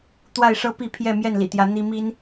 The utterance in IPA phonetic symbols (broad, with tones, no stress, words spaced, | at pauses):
t̪wa˥˨ɪ̯ʂɤ˦ pi˥˨ pʰjɛ˥˨ mjɛ˥˨nlḭ˨˩t̪jä˨˦ n̪i˦ mi˦n